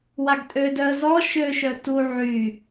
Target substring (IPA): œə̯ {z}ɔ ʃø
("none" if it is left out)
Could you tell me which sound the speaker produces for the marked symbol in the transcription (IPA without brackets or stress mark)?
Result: z